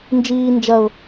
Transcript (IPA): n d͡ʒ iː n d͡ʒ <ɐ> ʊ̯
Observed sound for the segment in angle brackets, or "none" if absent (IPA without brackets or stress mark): ɐ